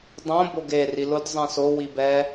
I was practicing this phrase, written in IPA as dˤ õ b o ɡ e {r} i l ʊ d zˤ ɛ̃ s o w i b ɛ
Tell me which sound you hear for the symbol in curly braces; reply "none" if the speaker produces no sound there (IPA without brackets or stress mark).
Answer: r